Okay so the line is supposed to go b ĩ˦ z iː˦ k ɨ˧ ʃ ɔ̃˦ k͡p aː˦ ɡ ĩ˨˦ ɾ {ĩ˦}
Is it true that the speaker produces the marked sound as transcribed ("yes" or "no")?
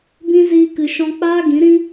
yes